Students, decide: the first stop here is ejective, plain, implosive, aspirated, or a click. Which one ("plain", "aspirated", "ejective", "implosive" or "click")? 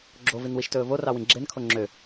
click